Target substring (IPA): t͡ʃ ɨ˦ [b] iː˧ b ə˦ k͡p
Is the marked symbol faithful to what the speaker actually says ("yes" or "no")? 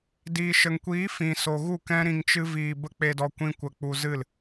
no